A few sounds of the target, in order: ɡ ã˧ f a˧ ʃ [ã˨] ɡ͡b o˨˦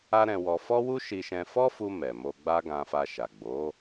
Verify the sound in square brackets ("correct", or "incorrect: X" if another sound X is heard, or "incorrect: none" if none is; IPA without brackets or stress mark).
incorrect: a˨